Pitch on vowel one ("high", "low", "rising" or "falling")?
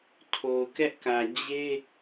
low